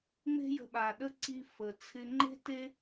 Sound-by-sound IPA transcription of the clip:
ŋ͡m e̤˥ j ə̤˧ ɓ a˩ ɗ ə˥ ǀ i˧ f ə˩ t͡sʰ ɪ˧ ŋ͡ǃ e̤˥ t e˥

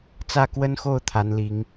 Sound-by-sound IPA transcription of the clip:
t͡s ä˥˩ k w ə˥ n x o˥˩ ʊ̯ t̪ʰ a˧˥ n l i˧˥ ŋ

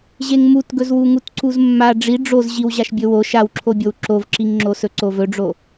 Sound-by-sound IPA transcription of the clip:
ʑ e ŋ m u t ɡ ɵ z w u ŋ u t ǀ u z mː a ɖ͡ʐ i ɖ͡ʐ o z ʑ i w ʑ a ʃ bʲ ɵ w o ʃ a w ǁʰ o bʲ o w ǁ o v ǁ i ŋ ŋ͡ǁ o s ɵ ǀ o v ɵ ɖ͡ʐ o

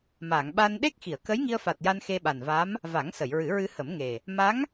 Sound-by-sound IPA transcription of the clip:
m a˨˩˨ ŋ ɓ a˧ n ɗ e˦˥ k̚ x i˨˩˨ ə̯ k ə˧˥ j ŋ i˧ ə̯ f a˨˩ t̚ j a˧ n x e˧ ɓ a˨˩ n v a˧˥ m | v a˨˩˦ ŋ s ə˨˩˨ j ɹ ɨ˨˩˦ ɹ ɨ˧ h ə˨˩˦ m ŋ e˨˩ | m a˧˥ ŋ

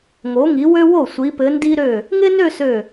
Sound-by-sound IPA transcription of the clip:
ŋ o˩˧ ŋ i˩˧ w ø˧ w o˧˩ sʷ i˩˧ p ɘ˩˧ n d i˧ ɾ ø˧˩ | ŋ ɪ˥ n ø˥˧ s ø˧˩

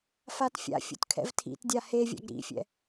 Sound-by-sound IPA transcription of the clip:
f a t fʲ a̰ fʲ ṵ t kʰ ɛ̰ v tʰ ḭ t dʲ a h e vʲ a̰ ɡ ɾ ḭ fʲ ɛ̰

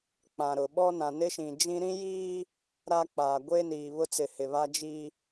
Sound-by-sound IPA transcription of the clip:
k͡p ã˨ ɾ ʊ˨ ɓ ɔ˦ n ã˨ n ɪ˦ ʃ ĩ˨ d͡ʒ ĩ˦ ɾ ĩ˦ j iː˦ | ɾ a˦ k͡p aː˨ ɡʷ e˦ n iː˨ β ʊ˦ t͡s ɪ˨ h ɪ˨ β a˦ d͡ʒ i˦

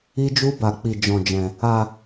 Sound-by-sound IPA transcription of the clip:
i˦ d͡ʒ u˦ b a˧ k͡p i˧ d͡ʒ ɔ̃˧ d͡ʒ ɛ̃˧ | a˧

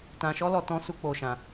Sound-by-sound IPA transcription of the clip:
t ã˧ ʃ ɔ˦ l ɔ˧ t ɔ̃˦ s u˦ k͡p o˧ ʃ ã˧

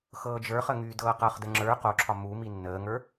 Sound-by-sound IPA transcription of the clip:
x ɤː d͡ʒ ə˞ χ ə ŋ yː d ɤː q ɤ χ d ə ŋ͡ǁ ə˞ q o ǁʰ ɒ m u m i nː əː ŋ ə˞

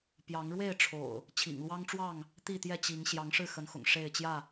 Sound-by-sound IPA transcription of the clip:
p j ɑ˨˦ ŋ ɻ w e˥˨ ɪ̯ ʈ͡ʂʰ o̰˨˩ ʊ̯ | t͡ɕʰ ḭ˨˩ ŋ l w ɑ˦ ŋ ʈ͡ʂ w ɑ˥˨ ŋ | t̪ i˥˨ t̪ j ɛ˥˨ t͡ɕ i˨˦ ŋ ɕ j ɑ˨˦ ŋ ʂ ɻ̩˥˨ x ə˨˦ n x ʊ̰˨˩ ŋ ʂ e˥˨ ɪ̯ t͡ɕ j ä˥˨

